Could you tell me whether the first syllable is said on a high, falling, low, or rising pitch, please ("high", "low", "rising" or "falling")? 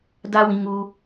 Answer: high